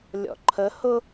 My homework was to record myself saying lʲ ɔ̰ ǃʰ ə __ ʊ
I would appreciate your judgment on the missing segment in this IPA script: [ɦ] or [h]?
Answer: h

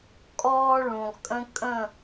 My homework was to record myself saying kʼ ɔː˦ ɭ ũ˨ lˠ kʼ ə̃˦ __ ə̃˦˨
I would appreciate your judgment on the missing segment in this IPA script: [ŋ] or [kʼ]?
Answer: kʼ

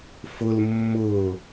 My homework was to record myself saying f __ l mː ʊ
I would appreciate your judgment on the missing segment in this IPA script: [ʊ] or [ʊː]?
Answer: ʊ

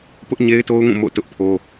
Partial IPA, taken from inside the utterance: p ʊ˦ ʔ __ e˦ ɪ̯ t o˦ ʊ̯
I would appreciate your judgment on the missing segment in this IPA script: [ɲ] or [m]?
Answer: ɲ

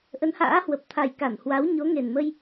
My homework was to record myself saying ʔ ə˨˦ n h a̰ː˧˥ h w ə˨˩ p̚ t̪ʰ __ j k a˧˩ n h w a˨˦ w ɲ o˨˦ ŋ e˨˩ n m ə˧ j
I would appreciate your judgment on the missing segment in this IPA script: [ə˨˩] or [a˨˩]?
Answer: a˨˩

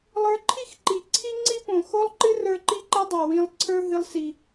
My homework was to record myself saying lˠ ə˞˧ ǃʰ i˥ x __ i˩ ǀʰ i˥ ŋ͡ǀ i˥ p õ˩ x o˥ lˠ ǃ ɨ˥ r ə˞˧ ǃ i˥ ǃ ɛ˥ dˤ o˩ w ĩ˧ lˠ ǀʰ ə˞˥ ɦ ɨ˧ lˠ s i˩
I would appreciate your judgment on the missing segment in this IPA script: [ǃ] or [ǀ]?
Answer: ǃ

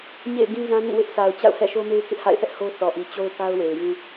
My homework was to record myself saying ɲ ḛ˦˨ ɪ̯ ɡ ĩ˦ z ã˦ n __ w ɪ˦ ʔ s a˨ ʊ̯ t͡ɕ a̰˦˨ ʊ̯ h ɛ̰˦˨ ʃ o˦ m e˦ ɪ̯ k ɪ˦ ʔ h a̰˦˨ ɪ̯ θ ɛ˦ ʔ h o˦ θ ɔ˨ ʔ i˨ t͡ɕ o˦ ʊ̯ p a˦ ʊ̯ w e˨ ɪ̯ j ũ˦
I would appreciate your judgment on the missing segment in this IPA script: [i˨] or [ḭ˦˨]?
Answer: ḭ˦˨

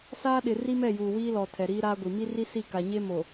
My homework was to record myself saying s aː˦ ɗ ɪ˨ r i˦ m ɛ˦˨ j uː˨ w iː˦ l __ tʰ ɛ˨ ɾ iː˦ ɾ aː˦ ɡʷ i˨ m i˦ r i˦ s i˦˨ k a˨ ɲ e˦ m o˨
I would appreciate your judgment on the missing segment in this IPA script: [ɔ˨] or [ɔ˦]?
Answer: ɔ˨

